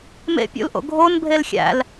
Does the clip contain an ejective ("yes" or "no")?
no